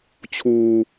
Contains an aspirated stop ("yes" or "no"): yes